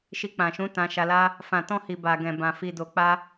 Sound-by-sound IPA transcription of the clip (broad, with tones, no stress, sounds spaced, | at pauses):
ʃ i˧ k͡p ã˨ ʃ ũ˨˦ t ã˧ ʃ a˧ l a˦ | f ã˨ t ɔ̃˧ h i˨ b a˨ ɡ ɛ̃˨ b ã˨ f i˨ d o˨ k͡p a˧